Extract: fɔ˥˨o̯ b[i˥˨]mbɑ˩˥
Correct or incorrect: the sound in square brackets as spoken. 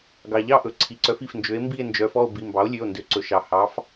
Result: incorrect: i˩˧˩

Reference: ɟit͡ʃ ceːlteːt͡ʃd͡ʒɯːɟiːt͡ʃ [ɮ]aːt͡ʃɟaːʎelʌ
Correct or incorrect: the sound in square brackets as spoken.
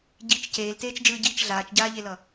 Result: correct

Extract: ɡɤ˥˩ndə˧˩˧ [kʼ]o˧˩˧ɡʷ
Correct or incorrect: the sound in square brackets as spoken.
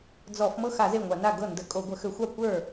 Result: correct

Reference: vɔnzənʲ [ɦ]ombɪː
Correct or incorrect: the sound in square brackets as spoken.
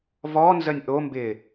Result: incorrect: ʔ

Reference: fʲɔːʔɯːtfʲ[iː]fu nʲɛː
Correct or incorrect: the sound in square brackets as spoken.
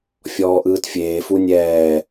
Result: incorrect: eː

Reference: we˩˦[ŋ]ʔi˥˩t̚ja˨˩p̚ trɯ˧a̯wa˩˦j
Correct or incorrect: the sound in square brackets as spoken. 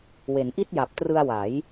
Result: incorrect: n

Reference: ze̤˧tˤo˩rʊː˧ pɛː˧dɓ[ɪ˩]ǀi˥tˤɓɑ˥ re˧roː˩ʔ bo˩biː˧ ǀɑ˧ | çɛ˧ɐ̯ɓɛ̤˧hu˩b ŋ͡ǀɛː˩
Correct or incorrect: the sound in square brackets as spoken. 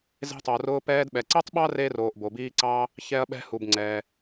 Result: incorrect: ɛ˩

